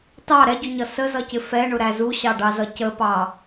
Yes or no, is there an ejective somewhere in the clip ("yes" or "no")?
no